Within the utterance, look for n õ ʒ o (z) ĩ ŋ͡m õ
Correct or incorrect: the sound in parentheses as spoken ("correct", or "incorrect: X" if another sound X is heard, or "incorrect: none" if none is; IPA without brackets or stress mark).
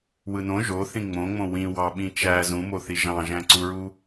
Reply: incorrect: θ